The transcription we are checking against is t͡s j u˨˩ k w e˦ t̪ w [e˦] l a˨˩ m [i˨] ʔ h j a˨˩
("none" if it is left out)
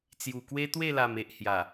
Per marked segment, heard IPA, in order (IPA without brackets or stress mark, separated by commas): e˥˧, e˨